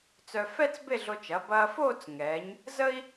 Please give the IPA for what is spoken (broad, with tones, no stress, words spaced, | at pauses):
t͡sœ˧fɛ˥t͡sbe˥˧ɮo˧t͡ʃ ɐ˩˧ bɐː˧foː˥˧t͡s ŋɛː˩˧ɲ | zə˥i̯